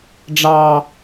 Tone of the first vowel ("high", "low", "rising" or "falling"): high